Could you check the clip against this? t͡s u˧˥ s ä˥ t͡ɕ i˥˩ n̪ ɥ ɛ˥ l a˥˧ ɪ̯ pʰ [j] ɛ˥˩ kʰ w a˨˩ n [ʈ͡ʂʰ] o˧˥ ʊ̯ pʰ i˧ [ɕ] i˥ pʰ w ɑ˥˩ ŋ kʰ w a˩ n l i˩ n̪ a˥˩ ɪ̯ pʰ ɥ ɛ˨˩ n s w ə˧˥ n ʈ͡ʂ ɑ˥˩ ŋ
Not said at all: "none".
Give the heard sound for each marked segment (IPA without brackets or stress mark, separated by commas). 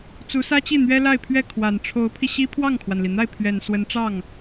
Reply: ɥ, ʈ͡ʂʰ, ɕ